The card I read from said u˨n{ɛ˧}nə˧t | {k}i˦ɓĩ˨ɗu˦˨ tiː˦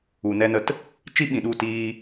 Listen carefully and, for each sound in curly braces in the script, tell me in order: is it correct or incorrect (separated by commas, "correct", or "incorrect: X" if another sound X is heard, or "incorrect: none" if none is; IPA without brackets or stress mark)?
correct, incorrect: t͡ʃ